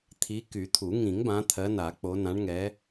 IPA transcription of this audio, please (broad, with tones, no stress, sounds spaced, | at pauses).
t̪ʰ i˨˦ k y˨˩˦ t̪ʰ u˨˩˦ ŋ ĩ˨˩˦ ŋ b ã˨˦ t̪ʰ ɜ˨˦ n a˨˩˦ k͡p o˨˦ n ã˨˦ ɳ ŋ ɛ˨˦